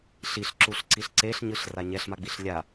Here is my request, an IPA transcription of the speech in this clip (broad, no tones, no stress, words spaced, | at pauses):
ɬiɬǁuɬǀiɬ ǀeɬɲɯɬra ɲɛɬmaɡ͡biɬ lʲa